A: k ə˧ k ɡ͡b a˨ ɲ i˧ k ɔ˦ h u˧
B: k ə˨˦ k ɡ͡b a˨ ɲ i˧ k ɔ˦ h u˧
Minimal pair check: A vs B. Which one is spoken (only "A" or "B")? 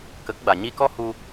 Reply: B